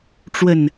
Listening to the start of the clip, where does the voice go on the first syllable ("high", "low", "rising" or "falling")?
low